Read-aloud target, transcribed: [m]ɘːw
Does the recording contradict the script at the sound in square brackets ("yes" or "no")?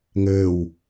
yes